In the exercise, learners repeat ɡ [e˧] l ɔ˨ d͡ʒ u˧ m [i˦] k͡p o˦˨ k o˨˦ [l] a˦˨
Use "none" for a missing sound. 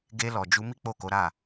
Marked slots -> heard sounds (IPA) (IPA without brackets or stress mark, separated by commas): e˧, i˦, ɾ